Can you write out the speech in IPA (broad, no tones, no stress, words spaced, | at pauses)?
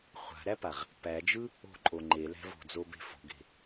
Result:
χʷa̤ɾæpaʁ | pæd͡ʒɯ | o̤ǃʼo ŋ͡ǃelæ̤v o̤d͡zobe̤ fo̤ɡe̤